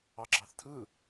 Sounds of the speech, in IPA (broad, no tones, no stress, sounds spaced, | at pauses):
ɑ ɡ͡ǁ ɑ θ tʰ ɯ